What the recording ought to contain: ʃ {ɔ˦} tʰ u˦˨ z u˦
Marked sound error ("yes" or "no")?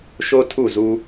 yes